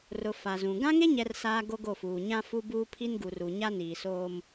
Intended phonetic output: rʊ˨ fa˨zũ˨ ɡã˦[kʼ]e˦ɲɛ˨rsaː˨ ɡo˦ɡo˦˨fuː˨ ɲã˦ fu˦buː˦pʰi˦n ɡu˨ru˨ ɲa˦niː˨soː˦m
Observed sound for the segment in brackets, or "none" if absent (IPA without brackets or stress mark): ŋ